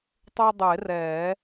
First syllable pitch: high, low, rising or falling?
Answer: high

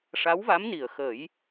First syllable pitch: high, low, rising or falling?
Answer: rising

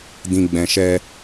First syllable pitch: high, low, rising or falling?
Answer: low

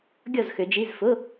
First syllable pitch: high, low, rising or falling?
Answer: falling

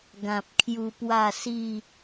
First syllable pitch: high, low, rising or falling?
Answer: low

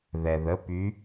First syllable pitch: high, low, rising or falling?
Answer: low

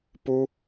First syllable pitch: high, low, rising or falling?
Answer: high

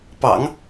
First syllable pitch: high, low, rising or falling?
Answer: low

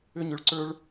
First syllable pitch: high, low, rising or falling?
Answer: high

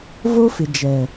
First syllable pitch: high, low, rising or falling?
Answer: high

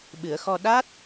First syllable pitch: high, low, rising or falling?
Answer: low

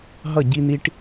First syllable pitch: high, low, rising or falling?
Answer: falling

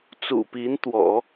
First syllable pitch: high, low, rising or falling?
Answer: low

